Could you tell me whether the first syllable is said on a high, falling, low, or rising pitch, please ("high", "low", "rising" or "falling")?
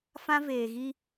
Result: high